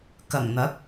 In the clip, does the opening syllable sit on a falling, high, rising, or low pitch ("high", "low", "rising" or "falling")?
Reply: low